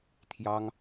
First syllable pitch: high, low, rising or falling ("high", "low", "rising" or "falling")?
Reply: high